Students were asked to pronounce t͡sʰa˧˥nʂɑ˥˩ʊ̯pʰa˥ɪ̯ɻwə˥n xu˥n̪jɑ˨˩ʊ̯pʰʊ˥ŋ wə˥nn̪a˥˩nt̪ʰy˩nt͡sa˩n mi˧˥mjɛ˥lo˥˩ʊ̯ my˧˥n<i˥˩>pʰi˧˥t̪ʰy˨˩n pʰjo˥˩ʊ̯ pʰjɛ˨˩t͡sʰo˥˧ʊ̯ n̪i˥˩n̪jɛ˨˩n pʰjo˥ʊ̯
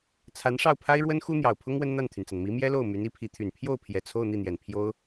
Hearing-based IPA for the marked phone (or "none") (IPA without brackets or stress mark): i˧˥